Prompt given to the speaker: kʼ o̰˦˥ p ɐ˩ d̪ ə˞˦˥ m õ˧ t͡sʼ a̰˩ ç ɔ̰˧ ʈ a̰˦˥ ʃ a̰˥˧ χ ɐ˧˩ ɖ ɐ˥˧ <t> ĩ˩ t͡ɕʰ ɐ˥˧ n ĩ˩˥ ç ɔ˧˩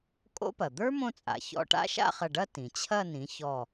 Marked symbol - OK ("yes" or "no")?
yes